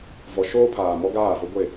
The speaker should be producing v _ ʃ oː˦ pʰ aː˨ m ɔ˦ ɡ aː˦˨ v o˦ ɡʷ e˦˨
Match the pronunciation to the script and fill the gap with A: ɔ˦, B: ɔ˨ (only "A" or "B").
B